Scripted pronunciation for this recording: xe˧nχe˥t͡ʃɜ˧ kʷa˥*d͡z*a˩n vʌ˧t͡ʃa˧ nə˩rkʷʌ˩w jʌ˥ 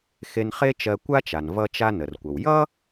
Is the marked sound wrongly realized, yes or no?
yes